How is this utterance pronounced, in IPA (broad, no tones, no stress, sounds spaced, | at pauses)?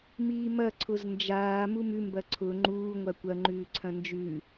m iː m ɐ ǀʰ ʊ z n d͡ʒ aː m u m ʉ m b ɐ ǀʰ ʊ ŋ͡ǃ uː ŋʷ a kʷ ɐ ŋ͡ǃ ʉː ǀʰ ɐ̃ n d͡ʒ ʉ